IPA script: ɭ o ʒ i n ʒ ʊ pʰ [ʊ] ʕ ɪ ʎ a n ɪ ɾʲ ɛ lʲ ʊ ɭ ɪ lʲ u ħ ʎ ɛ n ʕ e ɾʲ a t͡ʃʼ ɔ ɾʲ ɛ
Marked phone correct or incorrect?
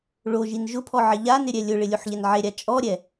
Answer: incorrect